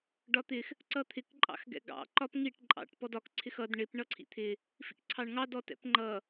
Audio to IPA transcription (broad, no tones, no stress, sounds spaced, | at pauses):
ɖ ɒ t̪ ɪ x | ǀ ʌ t̪ʰ ɪ k ǃʼ ɑ̰ x ɡ ɛ̰ ɡ ɑ̰ ǃ ɒ p ŋ i ʈ ǃʼ ɑ̰ ʈ p ɔ d ɒ k ǀʰ ɪ x ʌ d ɳ ɪ p ɳ ʌ ǀʰ ḭ t̪ʰ ɪ | f ḭ k ǀʰ ɑ ɳ ŋ ɑ d ɔ t ɛ̰ p ŋ͡ǃ ʌ